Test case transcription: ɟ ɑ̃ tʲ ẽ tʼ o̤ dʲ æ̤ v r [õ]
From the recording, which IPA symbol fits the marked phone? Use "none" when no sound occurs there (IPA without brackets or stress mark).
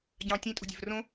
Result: õ